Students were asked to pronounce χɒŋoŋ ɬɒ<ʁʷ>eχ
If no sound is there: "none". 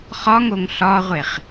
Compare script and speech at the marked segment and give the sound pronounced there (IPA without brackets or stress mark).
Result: ʁʷ